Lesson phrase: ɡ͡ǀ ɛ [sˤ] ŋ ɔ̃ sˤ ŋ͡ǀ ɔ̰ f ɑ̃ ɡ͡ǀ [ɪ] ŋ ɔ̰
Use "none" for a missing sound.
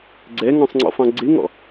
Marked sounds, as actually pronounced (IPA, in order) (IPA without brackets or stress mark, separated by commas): none, ɪ